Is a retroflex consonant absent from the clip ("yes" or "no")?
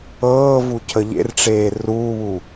no